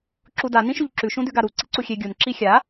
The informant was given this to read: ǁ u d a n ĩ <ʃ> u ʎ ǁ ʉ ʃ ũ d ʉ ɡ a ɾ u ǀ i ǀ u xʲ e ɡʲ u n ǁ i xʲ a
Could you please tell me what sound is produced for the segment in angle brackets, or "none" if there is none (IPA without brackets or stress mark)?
ʃ